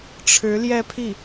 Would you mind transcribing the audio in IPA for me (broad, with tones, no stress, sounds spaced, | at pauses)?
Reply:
ʈ͡ʂʰ ɻ̩˧˥ l j ɛ˥˧ pʰ i˥˩